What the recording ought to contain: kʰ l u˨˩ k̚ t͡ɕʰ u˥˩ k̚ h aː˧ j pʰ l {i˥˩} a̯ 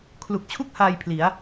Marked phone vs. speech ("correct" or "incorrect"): incorrect